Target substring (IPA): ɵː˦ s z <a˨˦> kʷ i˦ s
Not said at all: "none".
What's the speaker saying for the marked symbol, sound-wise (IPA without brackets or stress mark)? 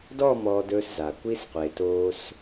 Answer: a˨